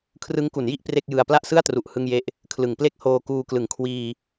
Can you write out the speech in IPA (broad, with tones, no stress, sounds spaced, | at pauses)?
kʰ r ɯ˦˥ ŋ k u˩˦ n j i˥˩ ʔ p r e˥˩ k̚ j ɯ˧ a̯ p l a˥˩ ʔ s ɯ˥˩ a̯ t r u˨˩ ʔ h ɯ˥˩ ŋ j e˥˩ ʔ | kʰ l ɯ˩˦ ŋ p l e˦˥ k̚ h oː˧ k uː˧ k l ɯ˩˦ ŋ kʰ w iː˧